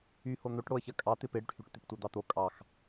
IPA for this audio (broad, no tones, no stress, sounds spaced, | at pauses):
y h o n̪ o ʈ ɽ o ə̯ ç ɜ kʼ ɑ t̪ ɪ p ɪ ɽ y ʈ h y ʈ t̪ ɪ p tʷ ɜ d̪ ɑ t̪ o kʼ ɑ x